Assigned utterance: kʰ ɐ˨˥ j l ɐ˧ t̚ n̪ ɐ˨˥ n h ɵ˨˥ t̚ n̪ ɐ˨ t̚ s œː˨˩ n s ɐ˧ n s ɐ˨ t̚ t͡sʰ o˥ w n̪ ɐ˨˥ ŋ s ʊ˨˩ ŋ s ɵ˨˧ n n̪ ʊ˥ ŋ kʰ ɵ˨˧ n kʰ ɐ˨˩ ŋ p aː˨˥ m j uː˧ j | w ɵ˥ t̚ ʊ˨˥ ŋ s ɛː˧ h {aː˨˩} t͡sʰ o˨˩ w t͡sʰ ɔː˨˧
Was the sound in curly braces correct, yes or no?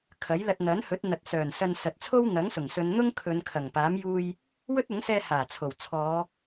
yes